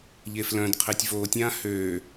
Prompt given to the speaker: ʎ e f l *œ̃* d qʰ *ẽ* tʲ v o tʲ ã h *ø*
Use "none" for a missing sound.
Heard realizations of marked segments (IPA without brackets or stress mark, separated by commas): œ̃, e, ø